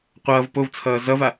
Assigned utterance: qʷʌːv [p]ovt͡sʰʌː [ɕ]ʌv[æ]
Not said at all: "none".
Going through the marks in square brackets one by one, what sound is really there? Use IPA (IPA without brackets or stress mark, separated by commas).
p, z, a